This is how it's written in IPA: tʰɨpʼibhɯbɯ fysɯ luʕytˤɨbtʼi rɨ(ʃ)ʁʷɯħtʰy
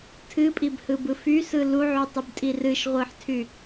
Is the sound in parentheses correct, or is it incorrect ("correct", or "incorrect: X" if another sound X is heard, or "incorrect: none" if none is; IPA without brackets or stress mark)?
correct